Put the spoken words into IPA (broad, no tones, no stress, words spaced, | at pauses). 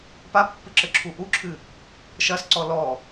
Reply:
papːɨ ǁɘǁʰuʔuǁʰɨ | ʃɐsǀɔ lɔ